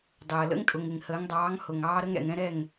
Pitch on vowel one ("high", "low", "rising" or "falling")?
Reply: low